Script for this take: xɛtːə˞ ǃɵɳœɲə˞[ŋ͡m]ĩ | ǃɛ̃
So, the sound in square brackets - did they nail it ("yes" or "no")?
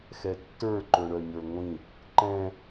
no